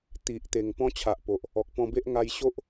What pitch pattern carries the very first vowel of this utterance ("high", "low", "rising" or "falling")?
low